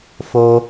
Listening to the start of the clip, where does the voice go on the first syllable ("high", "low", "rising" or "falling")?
high